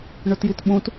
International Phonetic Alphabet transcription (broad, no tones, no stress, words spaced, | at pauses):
ɳɵtjitɓũt